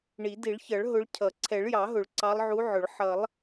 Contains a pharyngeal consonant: yes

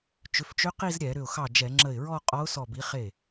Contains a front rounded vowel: yes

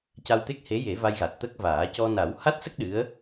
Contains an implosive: yes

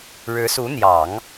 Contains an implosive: no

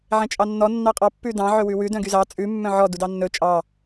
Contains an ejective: yes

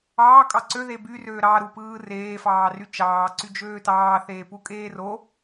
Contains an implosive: no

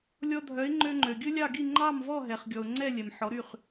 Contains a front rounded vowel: yes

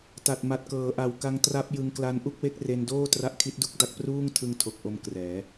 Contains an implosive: no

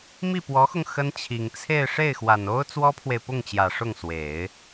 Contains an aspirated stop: yes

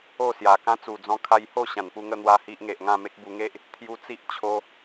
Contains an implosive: no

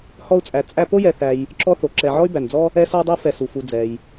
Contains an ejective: yes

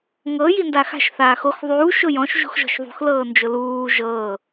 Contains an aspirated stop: no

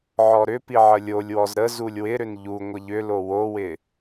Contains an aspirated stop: no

